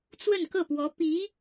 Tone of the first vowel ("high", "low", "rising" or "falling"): falling